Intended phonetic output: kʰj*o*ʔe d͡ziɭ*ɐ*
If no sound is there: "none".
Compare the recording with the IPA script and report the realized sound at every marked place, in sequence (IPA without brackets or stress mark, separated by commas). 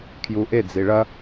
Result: u, ɐ